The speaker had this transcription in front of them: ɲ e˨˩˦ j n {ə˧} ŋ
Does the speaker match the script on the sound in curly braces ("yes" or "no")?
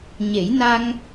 no